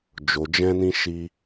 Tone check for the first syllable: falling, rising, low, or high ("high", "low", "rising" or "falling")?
low